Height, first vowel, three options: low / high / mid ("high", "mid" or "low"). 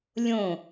mid